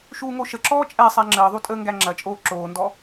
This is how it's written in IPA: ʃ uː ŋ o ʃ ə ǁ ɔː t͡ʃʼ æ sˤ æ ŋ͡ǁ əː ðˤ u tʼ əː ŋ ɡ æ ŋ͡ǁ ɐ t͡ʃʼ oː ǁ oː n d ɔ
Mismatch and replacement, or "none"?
none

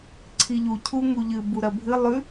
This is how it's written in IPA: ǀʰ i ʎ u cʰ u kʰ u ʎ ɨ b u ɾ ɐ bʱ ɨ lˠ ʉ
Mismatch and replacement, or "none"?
kʰ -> ŋ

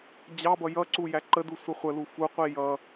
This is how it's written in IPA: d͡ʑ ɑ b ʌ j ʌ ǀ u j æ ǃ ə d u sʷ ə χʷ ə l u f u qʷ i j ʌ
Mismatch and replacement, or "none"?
none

